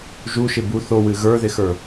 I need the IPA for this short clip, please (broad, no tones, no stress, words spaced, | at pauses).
ʒuʃɪ bu θowɨ ɣə˞ðɪxə˞